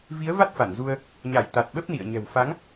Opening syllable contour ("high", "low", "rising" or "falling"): rising